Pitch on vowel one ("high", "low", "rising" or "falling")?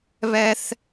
high